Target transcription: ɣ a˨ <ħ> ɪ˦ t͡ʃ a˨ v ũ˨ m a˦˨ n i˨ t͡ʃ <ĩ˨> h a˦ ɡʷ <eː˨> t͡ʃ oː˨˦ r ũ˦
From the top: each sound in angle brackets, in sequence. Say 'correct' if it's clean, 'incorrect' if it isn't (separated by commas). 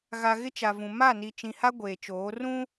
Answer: incorrect, correct, correct